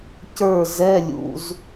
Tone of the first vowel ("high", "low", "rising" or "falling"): falling